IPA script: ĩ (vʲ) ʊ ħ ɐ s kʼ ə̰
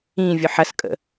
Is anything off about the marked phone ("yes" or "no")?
no